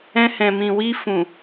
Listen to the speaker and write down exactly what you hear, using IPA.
ɛ̃˧ h ɛ̃˨ m ĩ˨ w i˧ f ũ˨

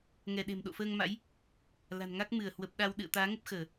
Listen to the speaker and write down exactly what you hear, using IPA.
ŋ ɛ˧˩ ɗ e̤˨˩ m ɗ o̰˧˨ f əː˧ ŋ m a̰˧˥ j | l a̤˨˩ n ŋ a˦˥ k̚ m ɨ˧˩ ə̯ h w ə˨˩ p̚ ɗ a˧ w ɗ ɨ̰˧˨ ə̯ t̪ aː˨˦ ŋ ə˦˥ p̚ x əː˧˩˨

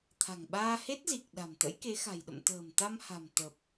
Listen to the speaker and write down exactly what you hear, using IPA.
t̪ʰ a̤˨˩ ŋ ɓ aː˧ h e˦˥ t̚ z i˨˩ k̚ ɗ a̤˨˩ m t̪ ə̰˧˥ j k e˨˦ x a̤˨˩ j ɗ ə̰˧˨ m t̪ ə̤ː˨˩ m t̪ a˧ m h a̤˨˩ m t̪ ə˨˩ p̚

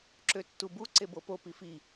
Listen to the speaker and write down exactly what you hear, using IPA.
ǁ ø tː u b u ǀ e b o p o p i f i

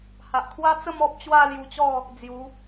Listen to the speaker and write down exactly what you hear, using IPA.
h a˨ ʔ kʰ w a˦ t͡s ə˥˧ m ɔ˦ p̚ t͡ɕ w a˥˧ l j u˧ t͡ɕ ɔ˥˧ | d͡z j u˨˦

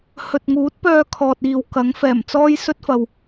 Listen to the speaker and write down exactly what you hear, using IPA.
h ɵ˨ t̚ ŋ uː˨˥ t̚ p œː˧ kʰ ɔː˨ t̚ iː˨ w k ɐ˨˥ ŋ f ɛː˨˩ m t͡s ɔː˥ j s ɵ˥ t̚ f ɐ˧ w

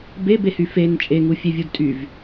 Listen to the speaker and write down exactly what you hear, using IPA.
b e b e h y f e n t͡ʃʼ e ŋ u fʲ e vʲ u d tʼ y v

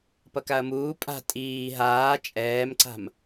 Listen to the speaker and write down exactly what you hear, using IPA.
p ʌ k a ɐ̯ m uː pʼ a̤ tʼ iː ɦ aː t͡ʃʼ ɛː m ǀ a̤ m

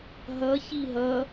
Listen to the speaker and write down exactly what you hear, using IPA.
ɦ ʌ ç i ɦ ʌ

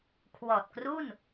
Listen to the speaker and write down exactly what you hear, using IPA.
kʰ w ɔː˨˩ t̚ k r u˥˩ n

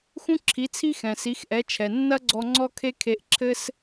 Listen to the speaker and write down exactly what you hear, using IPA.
x ũ˥ ǁʰ i˩˥ t͡sʰ i˥ x ɛ̃˩ s i˩˥ x ʔ ɛ˩˥ t͡ʃʰ ɛ˩ nː ɐ˥ ɡ͡ǀ ɔ˧ ŋ͡ǀ ɔ˥ kʰ e˥ kʰ e˧ ʔ ǁʰ ɘ˥ s

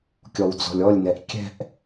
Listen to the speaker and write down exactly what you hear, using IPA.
kʲ ɔ w d͡z ɔ̤ lʲ ɔ lʲ n ɛ ʔ kʲ ɛ̤ ʔ

